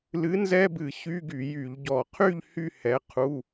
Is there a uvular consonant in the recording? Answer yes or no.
yes